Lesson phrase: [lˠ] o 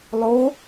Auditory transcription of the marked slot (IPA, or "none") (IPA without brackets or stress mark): lˠ